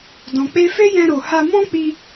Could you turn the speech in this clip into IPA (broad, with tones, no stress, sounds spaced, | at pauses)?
d ɔ̃˨ k͡p e˧ f e˦ j ɛ̃˧ ɾ o˨ h a˧ m ɔ̃˦ k͡p i˧